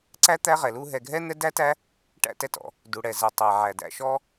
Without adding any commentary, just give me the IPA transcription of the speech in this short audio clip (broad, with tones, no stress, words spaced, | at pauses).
ǀæ˥t̪æ˦ ʁɛ˩lu˦ ɦɛ˨ɡʱɛ˥ n̪ɛ˦dæ˥tæ˦ | ʈæ̰˦tɛ˨tɔ̰˩ | du˩ɽɛ˩zɛ˩tˤæ˩ ʕæ˩dæ̰˨ʃɔ˦